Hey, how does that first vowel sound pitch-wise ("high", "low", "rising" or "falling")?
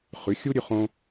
rising